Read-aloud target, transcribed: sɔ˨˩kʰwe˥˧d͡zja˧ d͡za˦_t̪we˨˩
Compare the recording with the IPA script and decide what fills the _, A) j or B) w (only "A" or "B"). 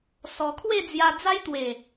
A